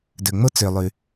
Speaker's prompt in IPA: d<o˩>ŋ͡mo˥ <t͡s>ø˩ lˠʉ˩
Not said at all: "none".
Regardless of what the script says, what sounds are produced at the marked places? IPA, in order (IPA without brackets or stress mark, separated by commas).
ɵ˩, t͡s